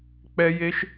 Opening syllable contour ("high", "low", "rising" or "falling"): high